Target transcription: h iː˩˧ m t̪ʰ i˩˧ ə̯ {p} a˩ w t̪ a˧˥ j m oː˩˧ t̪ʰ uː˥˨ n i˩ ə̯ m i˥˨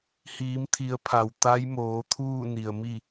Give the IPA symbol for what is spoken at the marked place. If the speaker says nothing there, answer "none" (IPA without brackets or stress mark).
pʰ